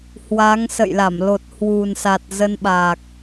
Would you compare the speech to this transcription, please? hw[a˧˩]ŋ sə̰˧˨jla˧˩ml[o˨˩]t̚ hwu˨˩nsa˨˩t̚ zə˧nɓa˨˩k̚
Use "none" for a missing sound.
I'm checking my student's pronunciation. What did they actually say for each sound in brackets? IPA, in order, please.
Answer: a˨˦, o˨˩

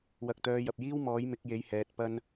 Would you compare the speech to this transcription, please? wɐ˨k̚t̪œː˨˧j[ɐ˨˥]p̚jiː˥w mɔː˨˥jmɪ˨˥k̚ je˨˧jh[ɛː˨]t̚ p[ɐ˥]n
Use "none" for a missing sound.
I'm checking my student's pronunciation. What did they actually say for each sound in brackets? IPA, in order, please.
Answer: ɐ˨, ɛː˨, ɐ˥

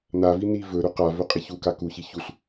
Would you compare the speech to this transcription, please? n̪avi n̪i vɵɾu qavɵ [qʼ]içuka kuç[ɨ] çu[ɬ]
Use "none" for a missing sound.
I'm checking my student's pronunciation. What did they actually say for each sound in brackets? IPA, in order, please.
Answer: qʼ, i, ɬ

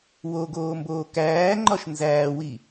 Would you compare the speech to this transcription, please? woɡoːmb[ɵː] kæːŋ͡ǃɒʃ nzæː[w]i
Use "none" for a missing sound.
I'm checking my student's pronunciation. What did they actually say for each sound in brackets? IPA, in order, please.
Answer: oː, w

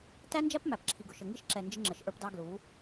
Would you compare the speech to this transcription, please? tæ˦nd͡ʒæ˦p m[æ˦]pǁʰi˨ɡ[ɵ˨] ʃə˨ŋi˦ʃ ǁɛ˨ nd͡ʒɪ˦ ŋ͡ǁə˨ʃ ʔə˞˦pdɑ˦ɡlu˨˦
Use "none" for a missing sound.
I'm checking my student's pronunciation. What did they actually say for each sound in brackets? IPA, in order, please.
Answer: æ˨, ʊ˨

